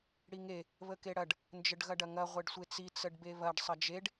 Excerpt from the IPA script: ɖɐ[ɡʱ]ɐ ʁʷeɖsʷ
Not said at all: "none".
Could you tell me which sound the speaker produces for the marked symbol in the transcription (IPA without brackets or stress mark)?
ŋ